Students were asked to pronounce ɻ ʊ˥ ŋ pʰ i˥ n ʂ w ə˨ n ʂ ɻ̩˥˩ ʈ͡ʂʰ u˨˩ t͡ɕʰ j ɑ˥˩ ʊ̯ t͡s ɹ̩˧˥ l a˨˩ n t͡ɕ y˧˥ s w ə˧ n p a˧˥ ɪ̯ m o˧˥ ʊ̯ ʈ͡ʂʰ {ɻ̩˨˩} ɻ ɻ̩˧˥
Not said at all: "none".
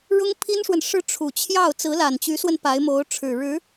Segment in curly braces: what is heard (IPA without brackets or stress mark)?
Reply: ɻ̩˨˩